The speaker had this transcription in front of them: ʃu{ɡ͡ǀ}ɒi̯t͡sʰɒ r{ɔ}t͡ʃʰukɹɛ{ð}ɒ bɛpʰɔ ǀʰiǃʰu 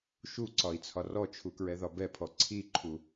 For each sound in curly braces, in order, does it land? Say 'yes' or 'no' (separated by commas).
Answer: no, yes, yes